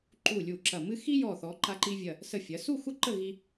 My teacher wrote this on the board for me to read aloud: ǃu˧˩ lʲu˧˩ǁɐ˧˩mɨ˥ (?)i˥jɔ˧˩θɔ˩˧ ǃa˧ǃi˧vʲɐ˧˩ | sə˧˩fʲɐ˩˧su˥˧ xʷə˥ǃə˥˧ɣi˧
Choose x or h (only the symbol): x